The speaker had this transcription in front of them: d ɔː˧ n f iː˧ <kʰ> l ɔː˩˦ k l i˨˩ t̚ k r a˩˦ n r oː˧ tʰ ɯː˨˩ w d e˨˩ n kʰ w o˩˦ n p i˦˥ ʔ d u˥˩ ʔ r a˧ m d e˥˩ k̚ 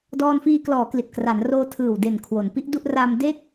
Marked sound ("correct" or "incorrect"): incorrect